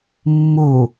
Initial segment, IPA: mː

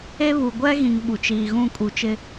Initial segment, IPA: e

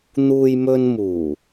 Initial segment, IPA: n̪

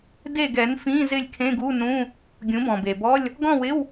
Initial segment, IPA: d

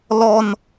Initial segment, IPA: l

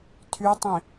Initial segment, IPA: tʰ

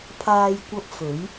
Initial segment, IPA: pʰ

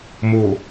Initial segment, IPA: m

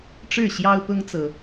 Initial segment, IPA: ʈ͡ʂ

